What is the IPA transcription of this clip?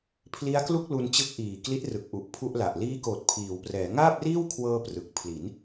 pʰ l i˦˥ a̯ k l u˥˩ k̚ l u˧ n t͡ɕ ɯ˦˥ k̚ ʔ iː˨˩ k l i˦˥ t̚ r ɯ˨˩ k̚ ʔ u˨˩ ʔ pʰ u˥˩ ʔ l a˨˩ ʔ l iː˦˥ k oː˨˩ t̚ pʰ iː˩˦ w p r ɛː˩˦ ŋ aː˥˩ p̚ r iː˥˩ w kʰ w ɤː˧ p r ɯ˨˩ k̚ pʰ l i˩˦ n

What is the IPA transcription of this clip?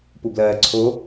p u b l ɜː ǀʰ o

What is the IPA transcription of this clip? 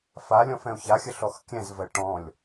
f a lʲ ɔ̃ f ɛ̃ o̯ ç a xʲ ə ɬ ɔ x kʲ ɛ̃ z v ɜ ʈ ɔ̃ lʲ

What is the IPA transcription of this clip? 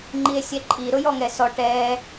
ŋ͡ǃ i e̯ sʲ ɛ ǃʼ i ɾ ʊ j ɔ ŋ ɛ s ɔ ʈ ɛ

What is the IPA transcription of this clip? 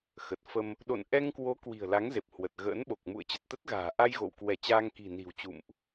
x ə˨˩ t̚ f ə˧ m | ɗ o̰˧˨ n ʔ ɛ˧ ŋ k w o˨˦ k w i̤˨˩ ə̯ l a˨˦ ŋ z e˨˩ p̚ h w ə˨˩ t̚ ɣ ə̰ː˧˥ n ɓ o˨˩ k̚ m ṵ˧˨ ə̯ t͡ɕ ə˨˩ t̚ t̪ ə˦˥ t̚ ɣ a̤ː˨˩ ʔ a˧ j ɣ o̰˧˨ w k w ɛ˧˩ t͡ɕ aː˧ ŋ k i̤˨˩ n i̤˨˩ w t͡ɕ ṵ˧˨ m ʔ

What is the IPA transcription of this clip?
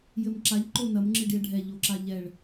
j ɘ m ǁ a ʎ ǃ o n ɐ m ŋ͡ǁ ɨ ɖ i ə̯ ɖʱ ɛ ʎ o ǁ a ʎ ɛ ɭ

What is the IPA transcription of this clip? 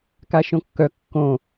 k a ʃ õ kː œ kː õ

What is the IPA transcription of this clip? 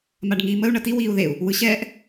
m a ɖ ŋ iː m ə u̯ ɳ ɐ t i w iː u̯ ð e u̯ | w ɯ ɕ ɛː ʔ

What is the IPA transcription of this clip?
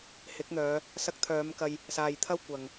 h ɪ˨˥ k̚ n̪ œː˨˧ | s ɐ˧ k̚ t̪ʰ œː˨˧ m k ɐ˧ j | s aː˨ j t̪ʰ ɐ˥ w kʷ ɐ˨ ŋ

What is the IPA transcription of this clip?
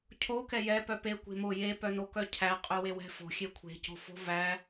cʰ o k ɛ j ɛ p œ p e kʷ e̤ m o j e p œ n o k œ cʰ æ qʼ ɵ w e w ɛ̤ f o̤ xʲ e kʷʰ e̤ c o̤ f o̤ v æ

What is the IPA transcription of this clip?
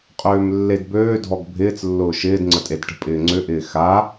qʼ øː m lː e d b øː dʱ ɔ ɡ bʱ ɪː t͡s lː ʊː ʃ ɪː d ŋ͡ǀ ə tʼ e d ʈ ə̤ pʼ ɪː ŋ͡ǀ ʏ ʔ ɪː x a

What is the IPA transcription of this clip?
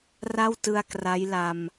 r a˥˩ w t ɯ˧ a̯ k r a˦˥ j l a˧ m

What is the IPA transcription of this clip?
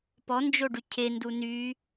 p ɔ n d͡ʒ o ɖ y cʰ e n d u n y

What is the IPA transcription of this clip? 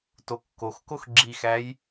t o kː o x k o x ɡ͡ǁ i x æ j

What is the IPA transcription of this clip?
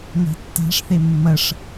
n a̤ tː a̤ ʂ θ e mː ɐ ʂ

